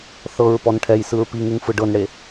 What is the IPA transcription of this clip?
θ ɤ ɹ p ɔ n ʈʰ ɛ j s ɯ ɹ p i ŋ ɯ ŋ f ɯ ɖ ɤ n ɽ e

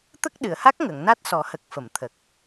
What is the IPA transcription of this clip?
t̪ ə˦˥ k̚ ɗ ɨ˨˩˨ ə̯ h a˦˥ k̚ ŋ ə˨˩˨ ŋ n a˦˥ t̚ s ɔ˨˩˦ h ə˨˩ k̚ f ə˨˩˨ m t̪ʰ ə˨˩ k̚

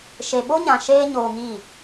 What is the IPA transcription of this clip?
ʃ e˨ ɓ o˦ ɲ ã˨ ʃ eː˦ ɲ oː˧ ŋ i˦˨

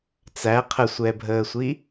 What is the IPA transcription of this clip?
t͡s æ qʰ ə sʷ ɛ bʱ əː sʷ i

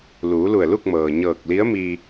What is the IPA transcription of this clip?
l uː˩˧ l u˧˩ ə̯ l u˥˨ k̚ m ɤː˩ ɲ ɤː˧˩ k̚ l i˧˥ ə̯ m iː˧

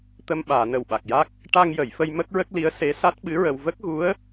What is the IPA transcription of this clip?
t̪ ə˧ m ɓ aː˨˩˨ n ə˨˩ w ɓ a˨˩ k̚ j a˦˥ k̚ | ʈ a˧ ŋ j ə˨˩˨ j f ə˧ j m ə˦˥ k̚ ɹ ə˦˥ k̚ l i˧˥ ə̯ s e˧˥ s a˦˥ t̚ ɓ ɨ˧˥ ɹ ə˧ w v ə˦˥ k̚ ɣ u˧˥ ə̯

